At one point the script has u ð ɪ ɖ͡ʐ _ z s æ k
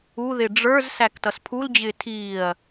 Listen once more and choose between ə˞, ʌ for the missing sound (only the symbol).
ə˞